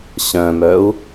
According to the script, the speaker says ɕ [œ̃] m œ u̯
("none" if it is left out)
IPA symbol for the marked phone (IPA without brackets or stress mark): œ̃